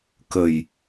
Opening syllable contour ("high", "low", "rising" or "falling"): low